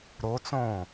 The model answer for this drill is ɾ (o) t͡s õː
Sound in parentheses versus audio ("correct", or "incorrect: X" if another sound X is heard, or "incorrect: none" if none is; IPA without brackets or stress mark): correct